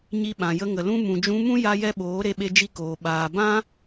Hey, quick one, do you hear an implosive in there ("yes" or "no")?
yes